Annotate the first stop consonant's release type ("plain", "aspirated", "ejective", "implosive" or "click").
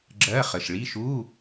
click